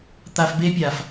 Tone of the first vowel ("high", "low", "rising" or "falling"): low